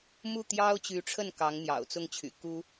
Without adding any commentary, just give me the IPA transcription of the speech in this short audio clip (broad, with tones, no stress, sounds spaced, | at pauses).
m u˥˩ t̪ j ɑ˥ ʊ̯ t͡ɕ y˧˥ ʈ͡ʂʰ ə˥˩ n k ɑ˧˥ ŋ n̪ j ɑ̰˨˩ ʊ̯ t͡s ʊ˥˩ ŋ t͡ɕʰ y̰˨˩ k u˥